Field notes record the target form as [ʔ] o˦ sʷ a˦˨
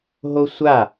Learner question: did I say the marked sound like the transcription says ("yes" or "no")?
no